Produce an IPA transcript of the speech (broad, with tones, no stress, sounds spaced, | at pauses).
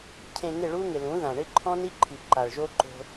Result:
cʰ ẽ˨ ŋ ɪ˦˨ ɭ u˦ ŋ ɪ˨ l ũ˨˦ ð ã˨ ɳ ɪ˦ ǃʰ ɔ̃˦ n i˦ ǃʰ i˨ ǃ a˨ ɭ ʒ o˦ ǃ o̤˦